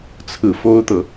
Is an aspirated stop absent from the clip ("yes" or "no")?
no